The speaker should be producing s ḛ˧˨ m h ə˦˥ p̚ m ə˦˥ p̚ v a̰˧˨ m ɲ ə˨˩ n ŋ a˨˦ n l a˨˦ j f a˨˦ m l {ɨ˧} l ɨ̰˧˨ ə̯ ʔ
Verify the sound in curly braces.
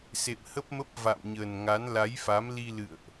incorrect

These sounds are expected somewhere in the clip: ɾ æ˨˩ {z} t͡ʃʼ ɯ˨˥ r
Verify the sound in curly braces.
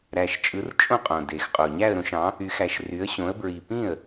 incorrect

